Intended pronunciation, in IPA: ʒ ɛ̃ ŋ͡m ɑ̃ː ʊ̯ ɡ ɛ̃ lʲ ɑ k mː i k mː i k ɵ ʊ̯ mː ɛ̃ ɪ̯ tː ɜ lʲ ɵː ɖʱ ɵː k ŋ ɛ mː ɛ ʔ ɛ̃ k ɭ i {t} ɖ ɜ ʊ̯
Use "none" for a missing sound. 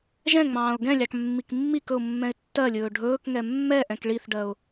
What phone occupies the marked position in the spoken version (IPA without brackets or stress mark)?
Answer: θ